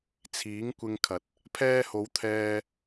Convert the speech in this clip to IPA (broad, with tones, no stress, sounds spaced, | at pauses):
t͡sʰ iː˨˥ ŋ kʷ ɪ˧ ŋ kʰ ɐ˨ t̚ | pʰ ɛː˧ h o˨˧ w t̪ʰ ɛː˧